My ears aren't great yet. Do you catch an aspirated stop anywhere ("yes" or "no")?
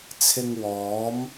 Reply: yes